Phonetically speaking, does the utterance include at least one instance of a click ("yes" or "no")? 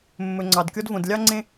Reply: yes